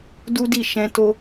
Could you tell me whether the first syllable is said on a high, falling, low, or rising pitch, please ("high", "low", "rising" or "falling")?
high